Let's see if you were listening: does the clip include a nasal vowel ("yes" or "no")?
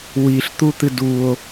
no